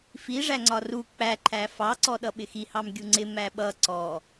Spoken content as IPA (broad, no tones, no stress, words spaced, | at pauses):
fi ʐæŋ͡ǀɒru k͡pæ ǃʰæfɑ ǀɔɗʌɓɪxi hɑmɡʲuŋ͡ǀɪ mæɓʌ ǀɔ